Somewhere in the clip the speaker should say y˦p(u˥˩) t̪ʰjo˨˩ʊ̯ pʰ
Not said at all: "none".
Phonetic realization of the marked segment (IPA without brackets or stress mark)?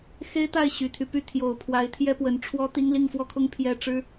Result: y˥˩